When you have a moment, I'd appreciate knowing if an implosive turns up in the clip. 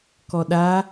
yes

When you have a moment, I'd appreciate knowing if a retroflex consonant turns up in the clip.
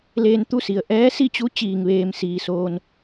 no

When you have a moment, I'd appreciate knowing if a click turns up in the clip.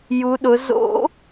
no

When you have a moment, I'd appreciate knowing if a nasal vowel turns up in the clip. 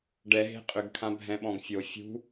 yes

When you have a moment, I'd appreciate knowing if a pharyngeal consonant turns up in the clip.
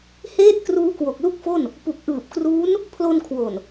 no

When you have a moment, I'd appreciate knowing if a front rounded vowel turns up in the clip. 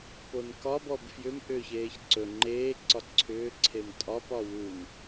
yes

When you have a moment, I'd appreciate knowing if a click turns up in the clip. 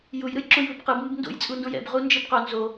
yes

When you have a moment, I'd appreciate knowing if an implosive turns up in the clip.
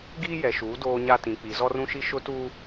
no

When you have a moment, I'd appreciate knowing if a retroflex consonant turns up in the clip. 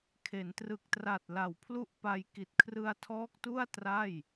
no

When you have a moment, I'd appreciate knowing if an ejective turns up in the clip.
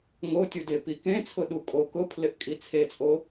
yes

